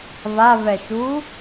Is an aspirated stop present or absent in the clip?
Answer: absent